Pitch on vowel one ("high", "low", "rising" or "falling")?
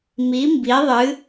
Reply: rising